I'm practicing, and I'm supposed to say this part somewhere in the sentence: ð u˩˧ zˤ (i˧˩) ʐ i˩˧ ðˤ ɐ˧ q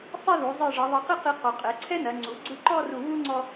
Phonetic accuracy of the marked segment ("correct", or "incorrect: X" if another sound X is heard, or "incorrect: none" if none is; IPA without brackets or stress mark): correct